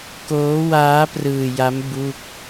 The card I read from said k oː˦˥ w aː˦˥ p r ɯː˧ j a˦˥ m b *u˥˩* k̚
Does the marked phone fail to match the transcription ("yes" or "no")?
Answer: no